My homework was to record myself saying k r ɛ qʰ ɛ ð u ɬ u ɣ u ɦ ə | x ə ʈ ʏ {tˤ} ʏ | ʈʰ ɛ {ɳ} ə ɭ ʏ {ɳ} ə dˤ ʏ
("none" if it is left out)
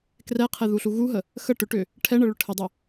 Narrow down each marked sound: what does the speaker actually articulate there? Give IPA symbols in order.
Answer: ʈ, ɳ, ʈʰ

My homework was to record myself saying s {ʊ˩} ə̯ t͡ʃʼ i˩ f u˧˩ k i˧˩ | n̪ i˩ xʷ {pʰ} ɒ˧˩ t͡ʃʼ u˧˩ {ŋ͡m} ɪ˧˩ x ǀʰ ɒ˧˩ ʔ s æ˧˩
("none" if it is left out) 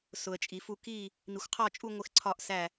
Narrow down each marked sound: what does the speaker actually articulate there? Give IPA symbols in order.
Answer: ʊ˩, qʰ, ŋʷ

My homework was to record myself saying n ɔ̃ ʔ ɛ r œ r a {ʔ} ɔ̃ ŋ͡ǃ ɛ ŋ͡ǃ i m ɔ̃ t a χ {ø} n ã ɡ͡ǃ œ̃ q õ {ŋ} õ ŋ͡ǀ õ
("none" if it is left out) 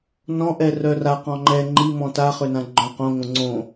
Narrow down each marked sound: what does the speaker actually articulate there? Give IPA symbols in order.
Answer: q, ø, ŋ

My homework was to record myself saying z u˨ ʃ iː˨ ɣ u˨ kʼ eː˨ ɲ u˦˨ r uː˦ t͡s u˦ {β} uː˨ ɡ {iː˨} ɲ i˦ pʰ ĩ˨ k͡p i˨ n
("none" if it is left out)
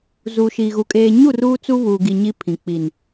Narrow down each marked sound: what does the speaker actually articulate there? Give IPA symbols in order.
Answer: β, i˨

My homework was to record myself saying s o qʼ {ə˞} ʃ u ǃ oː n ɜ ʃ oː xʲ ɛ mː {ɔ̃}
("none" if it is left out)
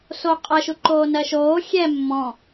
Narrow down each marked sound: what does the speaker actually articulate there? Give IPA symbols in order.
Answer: ɜ, ɔ̃

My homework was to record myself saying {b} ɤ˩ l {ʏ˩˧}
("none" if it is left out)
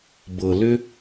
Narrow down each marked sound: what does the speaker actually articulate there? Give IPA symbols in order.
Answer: b, ʏ˧

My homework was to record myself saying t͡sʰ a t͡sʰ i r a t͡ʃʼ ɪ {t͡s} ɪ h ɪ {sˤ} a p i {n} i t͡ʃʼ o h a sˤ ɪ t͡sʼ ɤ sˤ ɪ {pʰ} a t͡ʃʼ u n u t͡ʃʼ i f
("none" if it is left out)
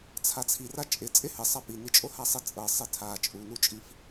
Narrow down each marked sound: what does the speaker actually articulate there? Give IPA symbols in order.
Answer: t͡sʼ, sˤ, n, tʰ

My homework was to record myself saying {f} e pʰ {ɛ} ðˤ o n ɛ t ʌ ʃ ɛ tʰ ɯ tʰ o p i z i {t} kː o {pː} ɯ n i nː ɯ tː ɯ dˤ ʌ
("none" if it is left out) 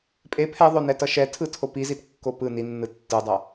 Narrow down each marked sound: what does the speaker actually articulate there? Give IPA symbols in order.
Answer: pʼ, ɛ, t, p

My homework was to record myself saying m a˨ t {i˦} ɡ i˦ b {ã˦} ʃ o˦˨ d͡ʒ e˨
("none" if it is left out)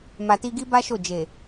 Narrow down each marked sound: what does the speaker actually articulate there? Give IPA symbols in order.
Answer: i˧, a˦

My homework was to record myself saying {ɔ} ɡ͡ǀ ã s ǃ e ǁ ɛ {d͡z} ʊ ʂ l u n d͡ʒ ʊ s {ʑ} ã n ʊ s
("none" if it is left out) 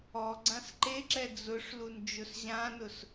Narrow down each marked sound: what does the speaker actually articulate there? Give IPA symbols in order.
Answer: ɔ, d͡z, ʑ

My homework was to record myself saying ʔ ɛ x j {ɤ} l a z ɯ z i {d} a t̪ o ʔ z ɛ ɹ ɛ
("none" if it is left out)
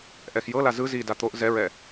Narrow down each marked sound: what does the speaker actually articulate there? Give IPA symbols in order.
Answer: ɤ, d

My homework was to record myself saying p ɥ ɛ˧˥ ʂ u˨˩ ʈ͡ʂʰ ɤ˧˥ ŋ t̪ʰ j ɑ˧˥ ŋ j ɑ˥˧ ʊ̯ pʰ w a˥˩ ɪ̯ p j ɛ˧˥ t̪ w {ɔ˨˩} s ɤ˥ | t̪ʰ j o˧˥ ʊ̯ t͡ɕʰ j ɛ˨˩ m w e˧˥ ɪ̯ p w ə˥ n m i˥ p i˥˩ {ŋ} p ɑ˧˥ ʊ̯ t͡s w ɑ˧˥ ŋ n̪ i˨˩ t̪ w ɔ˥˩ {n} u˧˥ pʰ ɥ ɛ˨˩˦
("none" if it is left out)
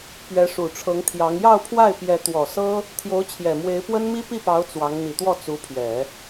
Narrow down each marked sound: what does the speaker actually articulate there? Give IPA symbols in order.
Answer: ɔ˨˩, none, t͡s

